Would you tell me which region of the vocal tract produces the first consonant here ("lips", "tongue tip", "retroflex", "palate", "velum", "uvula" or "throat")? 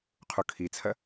uvula